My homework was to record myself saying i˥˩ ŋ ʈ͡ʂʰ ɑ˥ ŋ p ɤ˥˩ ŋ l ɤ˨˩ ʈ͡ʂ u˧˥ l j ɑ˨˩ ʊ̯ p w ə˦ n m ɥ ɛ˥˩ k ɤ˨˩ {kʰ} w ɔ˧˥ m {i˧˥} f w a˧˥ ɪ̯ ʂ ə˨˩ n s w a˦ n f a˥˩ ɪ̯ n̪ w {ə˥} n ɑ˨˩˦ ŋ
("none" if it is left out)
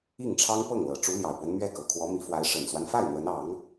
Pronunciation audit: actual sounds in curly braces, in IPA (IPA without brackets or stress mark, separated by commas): kʰ, i˧˥, ə˧˥